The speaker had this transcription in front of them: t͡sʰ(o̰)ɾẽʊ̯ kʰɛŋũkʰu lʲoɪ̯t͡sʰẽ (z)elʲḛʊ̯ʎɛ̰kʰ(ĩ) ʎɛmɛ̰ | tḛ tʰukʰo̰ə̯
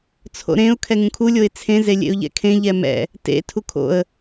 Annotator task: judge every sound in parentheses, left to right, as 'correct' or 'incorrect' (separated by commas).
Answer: correct, correct, incorrect